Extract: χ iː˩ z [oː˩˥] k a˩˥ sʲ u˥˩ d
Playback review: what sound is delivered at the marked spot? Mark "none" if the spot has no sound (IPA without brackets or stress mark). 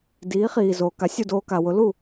oː˩